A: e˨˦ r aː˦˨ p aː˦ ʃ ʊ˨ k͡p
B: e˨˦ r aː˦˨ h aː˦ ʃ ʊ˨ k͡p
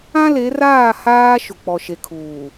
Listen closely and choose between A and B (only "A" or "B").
B